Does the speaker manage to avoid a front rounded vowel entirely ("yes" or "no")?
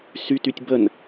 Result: no